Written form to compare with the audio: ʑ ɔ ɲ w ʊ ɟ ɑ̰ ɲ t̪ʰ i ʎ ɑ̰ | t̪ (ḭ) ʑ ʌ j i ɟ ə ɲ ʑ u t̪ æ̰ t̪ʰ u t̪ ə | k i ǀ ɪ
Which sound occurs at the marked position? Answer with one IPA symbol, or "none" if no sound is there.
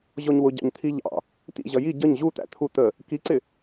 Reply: ḭ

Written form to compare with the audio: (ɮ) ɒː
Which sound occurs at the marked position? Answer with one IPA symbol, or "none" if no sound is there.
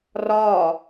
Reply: r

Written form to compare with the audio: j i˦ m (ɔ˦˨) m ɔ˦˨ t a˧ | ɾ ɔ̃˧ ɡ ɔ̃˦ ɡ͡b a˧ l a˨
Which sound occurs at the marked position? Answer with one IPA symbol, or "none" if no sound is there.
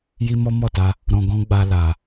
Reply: ɔ˦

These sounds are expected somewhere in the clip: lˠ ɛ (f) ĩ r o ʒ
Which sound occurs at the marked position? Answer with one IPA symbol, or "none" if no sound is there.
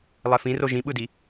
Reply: f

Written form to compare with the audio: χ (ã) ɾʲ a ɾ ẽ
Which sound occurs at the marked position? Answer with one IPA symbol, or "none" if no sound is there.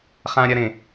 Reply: ã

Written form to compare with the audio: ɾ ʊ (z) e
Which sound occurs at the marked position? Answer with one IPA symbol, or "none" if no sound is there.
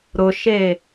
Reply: ʃ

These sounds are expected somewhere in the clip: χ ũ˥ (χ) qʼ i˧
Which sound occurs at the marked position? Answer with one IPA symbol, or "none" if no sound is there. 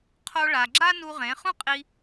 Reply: none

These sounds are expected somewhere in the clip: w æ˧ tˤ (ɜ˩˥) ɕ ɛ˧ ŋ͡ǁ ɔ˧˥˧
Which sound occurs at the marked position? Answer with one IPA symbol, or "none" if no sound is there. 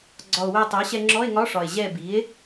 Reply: ɜ˩˥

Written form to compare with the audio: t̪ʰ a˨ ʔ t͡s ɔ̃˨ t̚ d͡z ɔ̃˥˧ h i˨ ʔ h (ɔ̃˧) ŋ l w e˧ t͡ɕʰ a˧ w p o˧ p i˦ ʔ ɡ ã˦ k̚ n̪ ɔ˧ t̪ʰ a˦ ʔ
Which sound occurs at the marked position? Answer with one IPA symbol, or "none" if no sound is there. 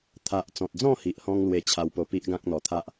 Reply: ɔ̃˧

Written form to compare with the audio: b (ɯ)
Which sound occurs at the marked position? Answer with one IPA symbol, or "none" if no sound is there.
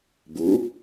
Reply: u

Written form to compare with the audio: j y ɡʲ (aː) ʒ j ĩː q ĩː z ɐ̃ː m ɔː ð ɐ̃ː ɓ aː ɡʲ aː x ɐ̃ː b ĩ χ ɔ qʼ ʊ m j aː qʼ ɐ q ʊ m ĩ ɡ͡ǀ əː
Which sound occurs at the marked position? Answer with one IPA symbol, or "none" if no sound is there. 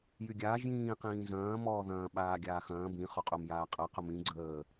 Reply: aː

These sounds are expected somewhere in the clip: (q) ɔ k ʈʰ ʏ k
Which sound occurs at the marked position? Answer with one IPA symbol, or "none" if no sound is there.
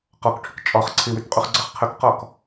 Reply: q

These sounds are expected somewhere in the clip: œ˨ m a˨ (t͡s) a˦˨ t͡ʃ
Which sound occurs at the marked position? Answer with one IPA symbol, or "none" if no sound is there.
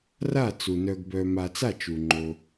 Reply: t͡s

